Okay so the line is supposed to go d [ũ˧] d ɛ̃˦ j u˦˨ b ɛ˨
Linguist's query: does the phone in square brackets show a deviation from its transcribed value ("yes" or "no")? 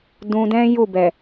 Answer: no